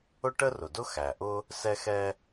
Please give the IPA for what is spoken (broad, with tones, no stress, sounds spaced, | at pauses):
ʊ˥ ʈ ə˥ r ʊ˩ d ʊ˥ x æ˩ ʔ ʊ˦ | s ɛ˦ x ɛ˦